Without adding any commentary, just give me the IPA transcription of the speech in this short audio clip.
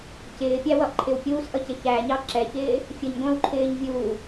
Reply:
c ɪː pʲ æ w ʌ ʔ ǃʰ ɪ w pʲ uː s ʔ ʌ c ɪ ç æ ɲ ɑ ǁ ɛ ç ɪː | fʲ ə ɲ ɡʷ æ̃ w ǃʰ ɪː ɲ vʲ uː

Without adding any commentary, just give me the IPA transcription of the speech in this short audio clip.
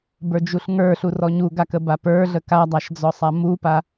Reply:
b ə˞ d͡ʒ u ɬ ŋ ə˞ ɬ u r ɔ ɲ u ɡ a k ə b a p ə˞ ɮ ə k a dˤ a ʃ d͡z ɔ sˤ a m u p a

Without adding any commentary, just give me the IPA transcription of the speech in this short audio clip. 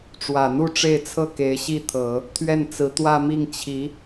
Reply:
ʈ͡ʂ w ä˨˩ n̪ u˥˧ ʈ͡ʂ e˥˧ ɪ̯ t͡sʰ ɤ˥˩ k e˧˥ ɪ̯ ɕ i˥˩ t̪ʰ ɤ˨˩˦ | t̪ʰ ɥ ɛ˥˩ n t͡s ɹ̩˧˥ t̪ w ä˥˧ m i˥˩ ŋ t͡ɕʰ i˧˥

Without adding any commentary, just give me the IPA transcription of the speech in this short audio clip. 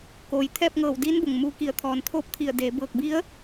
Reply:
k oː˩ j t̪ʰ ɛː˥˨ p̚ ŋ ɤː˧˩ w d iː˧˥ n b o˩ ŋ m uː˧ k i˧˩ ə̯ t̪ʰ ɔː˩ n t̪ʰ oː˥˨ p̚ t̪ʰ i˧˩ ə̯ d eː˩˧ b ɤː˧˩ k̚ b i˧˥ ə̯

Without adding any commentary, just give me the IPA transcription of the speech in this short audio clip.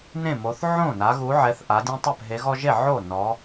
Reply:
n ẽ˥˩ m o˨˦ θ ʕ õ˥˩ n a˨˦ ɣ u˨˦ ʕ ɛ˨˦ θ ʔ a˨˦ dʲ õ˦ tˤ ɛ˥˩ p ɦ e˨˦ ɣ ɔ˦ ʒ e˥˩ ʕ o˥˩ n ɔ˨˦

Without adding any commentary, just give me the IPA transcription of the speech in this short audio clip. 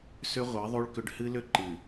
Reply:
s ʏ˦ ʁʷ ɨ˨˦ ðˤ u˦ ɭ k ʏ˦ ɖ h ɨ˦ l ʏ˦ ǃ ɨ˨

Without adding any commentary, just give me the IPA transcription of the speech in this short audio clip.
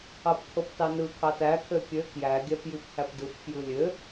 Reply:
ɑ p kʰ o p t ɑ n ɯ kʰ ɑ t æ kʰ ø kʲ ø k j æ ɡʲ æ p j i p h æ p d ɯ p f j ɯ lʲ ø

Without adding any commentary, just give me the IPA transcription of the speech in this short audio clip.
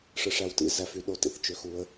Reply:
ʂ ɯ˨ ʂ æ˨ w t ḭ˦ z æ˨ f y˨˦ ɗ o˧ t ḭ˧ θ t͡ʃ ø˧ x u˧ ə̯

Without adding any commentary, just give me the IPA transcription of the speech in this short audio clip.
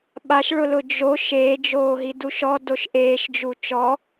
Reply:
ɓ a ʃ ɭ ʊ l ʊ d͡ʒ o ʃ eː d͡ʒ oː ɦ i d u ʃ ɔ d o ʃ ʔ eː ʃ d͡ʒ u t͡ʃ ɔ

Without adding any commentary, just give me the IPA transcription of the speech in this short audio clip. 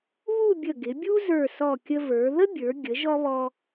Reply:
β u˥˧ bʲ ə˧˩ ɡ ɪ˩˧ bʲ u˥ z ə˞˧˩ s ɔ˧˩ kʲ ə˧ v ə˞˩˧ ð ə˥ bʲ ə˞˩˧ ɡʲ ə˩˧ ʒ ɔ˧ β ɔ˧

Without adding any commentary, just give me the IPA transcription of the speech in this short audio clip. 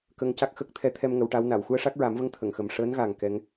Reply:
k ə˧ ŋ c a˦˥ k̚ x ə˦˥ k̚ t̪ʰ ɛ˧˥ t̪ʰ ɛ˧ m ŋ ə˨˩˦ w ʈ a˧˥ w n a˨˩˨ w x u˧ ə̯ ʂ a˦˥ k̚ ɹ a˨˩˦ m v ə˧˥ ŋ t̪ʰ ə˨˩˨ ŋ x ə˨˩ m ʂ əː˧˥ n ɣ a˨˩ ŋ k ɛ˧˥ ŋ

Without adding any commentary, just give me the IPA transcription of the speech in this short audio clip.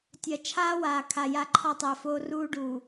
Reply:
tʲ ɐ˨ t͡ʃʰ aː˦ w aː˨ kʰ a˨ j a˦ ǃʰ ɒ˦ tˤ ɛ˨ f oː˦ r uː˦ ɖ uː˨

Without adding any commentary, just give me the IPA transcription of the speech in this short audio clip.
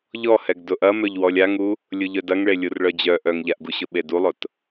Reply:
ʎ ɔ h ɛ ɡ d ʊ ʔ ɐ m œ ʎ w ɔ lʲ a ŋ u | lʲ ʊ ʎ œ d ɐ ŋ ɭ e lʲ u r ɭ œ d͡ʑ œ ʔ œ ŋ ʎ a ʔ ɡ u ɕ ʊ ɓ e d u lˠ ʊ t

